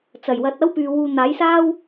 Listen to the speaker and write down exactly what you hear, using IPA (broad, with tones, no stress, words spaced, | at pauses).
t͡sɐ˨˩jwɐ˨˥t̚ɐ˥wpyː˨ wuː˨ n̪aː˨˥jsaː˥w